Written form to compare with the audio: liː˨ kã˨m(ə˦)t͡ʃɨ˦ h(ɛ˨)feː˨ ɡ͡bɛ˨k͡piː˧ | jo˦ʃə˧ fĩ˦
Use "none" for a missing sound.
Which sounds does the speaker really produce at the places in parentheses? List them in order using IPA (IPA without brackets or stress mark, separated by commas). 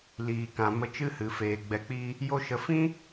ə˧, ɨ˨